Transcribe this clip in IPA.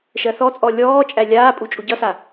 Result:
ʃɜθɔt͡sʼɔ lʲɔːt͡ʃʼæ lʲaːpʼu t͡ʃʼuɟʌsa

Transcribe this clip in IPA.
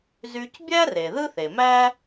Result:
zy˧cbʲæ˥ re˩ ðɯ˥θe˩ mæ˥

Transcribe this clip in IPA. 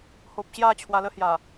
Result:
ho˨p̚ɕja˥˧ t͡ɕʰwa˧lə˦hja˨˩

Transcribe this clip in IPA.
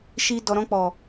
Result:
ʃi˨ dɔ˨ɾɔ̃˧k͡pɔ˨

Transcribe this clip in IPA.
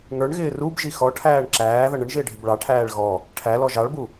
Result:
ŋə˞ɳɣɪː rubʒi xɔʈʰæːɳ ǁæːðʌ ɳəɳʒɪːɖʱɪb ɭɑʈʰæːɭ ɣɔ | ʈʰælɔ ʒɑɭbu

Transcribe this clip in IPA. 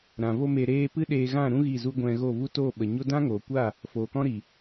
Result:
ɾã˨vo˦me˧ɾeː˦ pɨ˦ɗeː˧ɣã˦˨ɾũ˦ ɣi˦˨zu˦ ɡʷɛ̃˧ɣo˦˨vu˦ toː˦˨ɓə˨ɲo˦ dã˦ŋoː˨kʷa˦˨ | foː˨kɔ̃˦ɾi˨

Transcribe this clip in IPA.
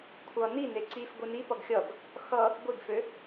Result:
kʷʰʌ nine ǀifɡʷi nipʌɡ xʲʌɡ | xʌ | ɡʷiɡfø

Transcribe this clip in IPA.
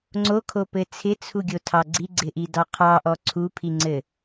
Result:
ŋ͡ǀokʰopɘ t͡sʰɪt͡sʰuɡʲotʰɑ ɡ͡ǀiɡ͡ǀɪʔi dɑqʰɑʔɔ ǀʰupʰiŋ͡ǀɘ

